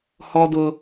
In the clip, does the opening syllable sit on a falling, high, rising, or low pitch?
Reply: high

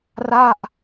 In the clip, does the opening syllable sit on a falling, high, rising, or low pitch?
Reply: falling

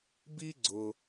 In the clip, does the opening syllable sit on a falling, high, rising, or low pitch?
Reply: high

